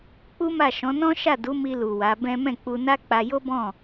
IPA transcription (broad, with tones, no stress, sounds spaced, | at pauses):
k͡p u˦ m a˦˨ ʃ ɔ̃˨˦ n ɔ̃˦ ʃ a˦˨ d u˨˦ m i˧ l u˨ w a˨˦ b ɛ̃˦ m ɛ̃˦˨ k͡p u˧ n a˦ k͡p a˧ j o˦ b ɔ̃˦˨